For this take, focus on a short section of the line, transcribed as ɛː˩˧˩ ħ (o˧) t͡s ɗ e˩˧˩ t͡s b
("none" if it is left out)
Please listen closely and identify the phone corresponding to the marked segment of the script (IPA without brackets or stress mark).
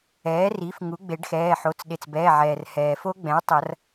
o˩˧˩